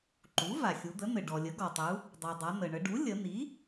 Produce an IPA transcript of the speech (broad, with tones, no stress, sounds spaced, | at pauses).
ǃ u˩˥ v a˩ xʲ u˩˧ d̪ ə˩˥ n̪ ɘ˩ ɖ ɔ˩ lʲ ə˩˥ ɡ ɔ˩ tˤ u˩˧ | dˤ u˩ dˤ a˩˧ n̪ ə˩ ɳ ə˩˧ ɖ u˩˥ lʲ ə˩˧ n̪ i˩˥